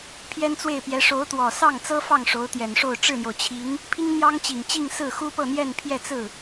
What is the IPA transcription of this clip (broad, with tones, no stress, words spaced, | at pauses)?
pʰjɛ˥nt͡swe˥˩ɪ̯pjɛ˧˥ ʂo˧˥ʊ̯t̪wɔ˨˩ sɑ˥˩ŋt͡sɤ˥fɑ˥˩ŋ ʂo˧˥ʊ̯ t̪jɛ˨˩nʂo˥˧ʊ̯ ʈ͡ʂɻ̩˥˩n̪jo˩ʊ̯ t͡ɕʰi˧˥ŋ | pʰi˥ŋn̪jɑ˥ŋt͡ɕi˨˩ŋt͡ɕi˥˧ŋ sɹ̩˥˩xu˥pɤ˥˧ n̪jɛ˥˧npʰjɛ˥˧ t͡sɹ̩˥˩